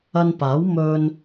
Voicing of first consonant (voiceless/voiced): voiced